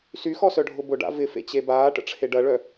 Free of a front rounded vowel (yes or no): no